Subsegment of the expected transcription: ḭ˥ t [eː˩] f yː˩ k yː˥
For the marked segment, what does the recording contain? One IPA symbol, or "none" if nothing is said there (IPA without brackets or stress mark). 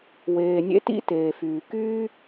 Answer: eː˩